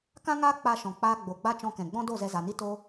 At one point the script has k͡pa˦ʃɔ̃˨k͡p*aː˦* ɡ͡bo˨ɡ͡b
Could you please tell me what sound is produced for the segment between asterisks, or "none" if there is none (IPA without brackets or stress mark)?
aː˦